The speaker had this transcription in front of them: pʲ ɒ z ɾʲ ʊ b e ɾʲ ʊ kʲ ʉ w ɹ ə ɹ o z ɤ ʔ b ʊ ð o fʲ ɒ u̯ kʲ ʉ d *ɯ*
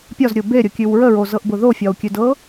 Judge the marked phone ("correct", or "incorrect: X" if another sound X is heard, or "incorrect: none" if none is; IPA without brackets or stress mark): incorrect: ɤ